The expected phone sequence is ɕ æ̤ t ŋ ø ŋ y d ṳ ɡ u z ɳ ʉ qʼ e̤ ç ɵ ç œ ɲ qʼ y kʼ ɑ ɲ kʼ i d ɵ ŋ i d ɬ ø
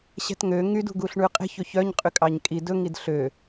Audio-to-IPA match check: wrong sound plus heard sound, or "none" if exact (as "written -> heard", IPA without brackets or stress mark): z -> ɬ